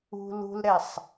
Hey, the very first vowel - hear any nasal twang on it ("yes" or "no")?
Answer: no